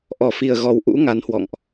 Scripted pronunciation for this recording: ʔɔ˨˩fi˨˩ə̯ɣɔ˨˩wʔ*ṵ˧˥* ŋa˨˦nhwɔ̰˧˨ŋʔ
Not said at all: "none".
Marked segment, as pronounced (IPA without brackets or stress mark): ṵ˧˥